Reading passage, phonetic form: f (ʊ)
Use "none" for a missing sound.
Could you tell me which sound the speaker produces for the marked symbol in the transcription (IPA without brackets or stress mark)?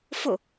ʊ